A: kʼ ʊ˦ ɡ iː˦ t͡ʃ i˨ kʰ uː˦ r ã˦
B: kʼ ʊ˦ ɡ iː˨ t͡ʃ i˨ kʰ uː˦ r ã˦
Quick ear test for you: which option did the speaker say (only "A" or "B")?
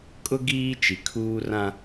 A